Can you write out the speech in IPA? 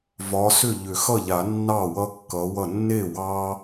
v ɒ˨˦ s ʏ˥˩ ʎ ʏ˨˩˦ x ʌ˥˩ ʎ a˨˩˦ nː ɑ˥˩ w ʌ˦ kː ʌ˨˦ w ʌ˥˩ nː e˥˩ w ɑ˦

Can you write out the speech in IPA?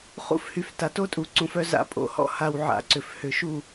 χ ṵ˧ f h y˨ f t a˨ t o˦ tʼ u˨ ǀ ũ˨ f œ˧ z a̰˨˦ pʼ o̰˧ h ɔ̰˦ h a˧ w ʕ a̰˨˦ ǀ ʏ˨ f h ʏ˨ ʃ u˦˨

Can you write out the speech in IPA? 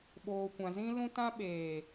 ɓ oː˨ kʷ ã˨ z ĩ˧ l ũ˧ t ã˧ ɓ eː˨

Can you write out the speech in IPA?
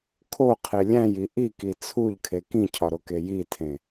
kʰ o qʰ e lʲ æ̃ j i ʔ i k i t͡sʰ u ʎ kʰ e k ĩ cʰ ɒ ɾ o k e j i tʰ ẽ

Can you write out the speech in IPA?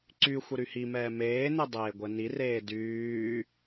ǀ y xʷ ə ɾ y h i m ɛː m eː n e dˤ eː ɡʷ ɛ n i r eː d yː

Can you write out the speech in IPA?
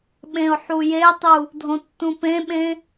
ɓ ẽ ʊ̯ ħ u j e tˤ u | dʱ õ tː ũ p ẽ ɓ ẽ

